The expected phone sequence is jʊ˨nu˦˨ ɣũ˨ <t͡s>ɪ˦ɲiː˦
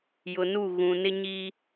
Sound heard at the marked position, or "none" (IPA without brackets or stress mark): n